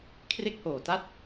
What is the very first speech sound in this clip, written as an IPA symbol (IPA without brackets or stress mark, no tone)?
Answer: kʰ